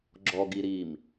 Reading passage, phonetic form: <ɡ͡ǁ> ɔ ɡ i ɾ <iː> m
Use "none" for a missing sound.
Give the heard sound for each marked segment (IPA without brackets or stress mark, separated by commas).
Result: ɡ͡ǁ, iː